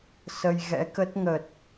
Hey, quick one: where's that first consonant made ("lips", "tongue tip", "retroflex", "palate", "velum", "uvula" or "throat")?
tongue tip